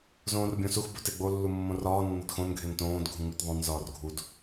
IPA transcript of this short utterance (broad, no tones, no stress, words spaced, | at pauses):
zõːrbʲõsux boteɡ͡bo lːumːõrɒː nːɒdxõn ɡʱentõːd ɡʱũŋ͡mitðˤõn zɒːrɡʱud